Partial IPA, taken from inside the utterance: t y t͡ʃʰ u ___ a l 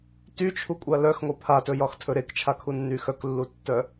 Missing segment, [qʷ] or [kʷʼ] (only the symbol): kʷʼ